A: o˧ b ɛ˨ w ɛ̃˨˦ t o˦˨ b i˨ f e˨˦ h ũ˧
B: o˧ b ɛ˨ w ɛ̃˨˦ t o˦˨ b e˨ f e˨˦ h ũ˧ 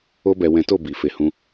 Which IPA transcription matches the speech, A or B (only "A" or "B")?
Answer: A